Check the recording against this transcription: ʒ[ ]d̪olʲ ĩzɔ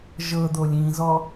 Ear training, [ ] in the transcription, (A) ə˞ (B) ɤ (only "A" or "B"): B